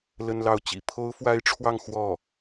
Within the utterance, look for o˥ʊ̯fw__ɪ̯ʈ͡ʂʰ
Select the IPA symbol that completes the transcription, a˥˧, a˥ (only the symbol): a˥